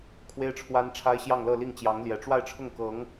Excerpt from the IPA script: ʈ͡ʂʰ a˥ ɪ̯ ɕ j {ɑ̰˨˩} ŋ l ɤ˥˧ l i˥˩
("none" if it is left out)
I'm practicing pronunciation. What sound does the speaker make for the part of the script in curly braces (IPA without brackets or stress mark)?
ɑ˥˧